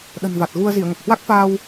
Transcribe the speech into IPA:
ɗ ə̤˨˩ n v a˨˩ t̚ ɣ u˧ ə̯ z i˧˩ ə̯ ŋ ə˨˩ p̚ h w a˦˥ k̚ f aː˧ w

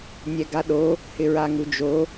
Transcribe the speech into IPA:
nʲ ɛ ɡ a ɗ o | h ɪ ɹ a ŋ u d͡ʒ o

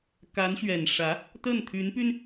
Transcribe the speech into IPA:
k a˧˥ n ɕ ɥ ɛ˨˩ n ʂ ä˧˥ | t̪ ə˥˩ n t̪ʰ y˧˥ n p y˧ n

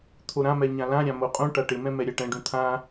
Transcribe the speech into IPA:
t̪ʰ o ɾ ã m ɛ ɲ ã l ã ɾʲ ã m o qʼ ũ ʈ a ʈ ɪ m ɛ̃ m ɛ ɾʲ a ʈ ɛ̃ ɖ ũ t̪ʰ ã

